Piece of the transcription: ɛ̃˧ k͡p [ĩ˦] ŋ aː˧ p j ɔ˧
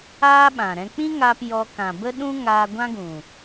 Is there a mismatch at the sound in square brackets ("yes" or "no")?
no